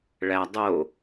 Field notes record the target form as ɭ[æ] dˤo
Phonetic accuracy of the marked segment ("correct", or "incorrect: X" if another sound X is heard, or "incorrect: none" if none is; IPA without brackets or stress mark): correct